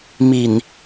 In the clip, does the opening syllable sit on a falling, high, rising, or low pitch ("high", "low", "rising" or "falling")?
low